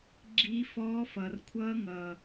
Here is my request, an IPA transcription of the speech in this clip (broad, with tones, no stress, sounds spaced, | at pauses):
ɡ͡ǁ iː˦˥ f ɔː˦˥ f ʌː˨˩ r kʷʰ ʌː˦˥ ŋ ʌː˨˩